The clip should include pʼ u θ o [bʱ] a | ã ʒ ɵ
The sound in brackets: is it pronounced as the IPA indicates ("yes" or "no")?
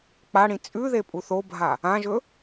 yes